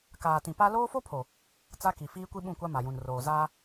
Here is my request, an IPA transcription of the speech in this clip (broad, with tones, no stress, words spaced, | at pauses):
kaː˨tĩ˨pa˦ loː˦fo˦pʰo˨ | t͡sa˦ki˨ fiː˦kʷi˦ɓũ˦˨kʷa˦ ma˨jũ˨nroː˨ zaː˦